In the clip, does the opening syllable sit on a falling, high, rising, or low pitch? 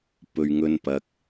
low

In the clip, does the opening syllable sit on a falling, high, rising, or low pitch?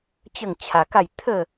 falling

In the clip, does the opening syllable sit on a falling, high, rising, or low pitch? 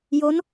rising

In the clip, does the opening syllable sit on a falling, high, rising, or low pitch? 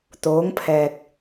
rising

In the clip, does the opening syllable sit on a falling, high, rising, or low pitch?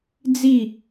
falling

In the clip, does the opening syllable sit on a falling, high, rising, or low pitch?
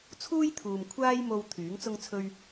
high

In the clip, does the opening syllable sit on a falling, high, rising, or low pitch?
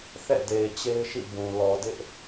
falling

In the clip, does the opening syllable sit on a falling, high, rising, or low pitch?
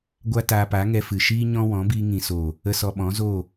high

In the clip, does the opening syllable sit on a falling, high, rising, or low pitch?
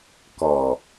low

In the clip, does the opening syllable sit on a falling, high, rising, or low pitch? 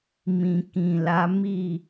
low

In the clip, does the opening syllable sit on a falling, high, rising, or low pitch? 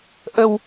low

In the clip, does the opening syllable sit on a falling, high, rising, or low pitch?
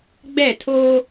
falling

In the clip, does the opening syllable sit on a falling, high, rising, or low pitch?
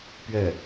falling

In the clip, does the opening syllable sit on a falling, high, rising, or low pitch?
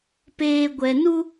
low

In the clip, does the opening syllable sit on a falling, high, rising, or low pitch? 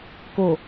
low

